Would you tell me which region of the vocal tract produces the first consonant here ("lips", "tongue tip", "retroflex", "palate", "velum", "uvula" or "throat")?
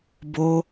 lips